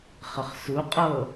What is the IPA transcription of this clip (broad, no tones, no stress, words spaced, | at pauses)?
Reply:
χəχsu qʼɤ